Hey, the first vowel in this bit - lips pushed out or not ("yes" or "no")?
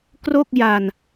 yes